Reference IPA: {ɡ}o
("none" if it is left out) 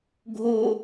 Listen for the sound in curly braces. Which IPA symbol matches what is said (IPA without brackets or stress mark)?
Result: ɡʱ